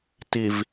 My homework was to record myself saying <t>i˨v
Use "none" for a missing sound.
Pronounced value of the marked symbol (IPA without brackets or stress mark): t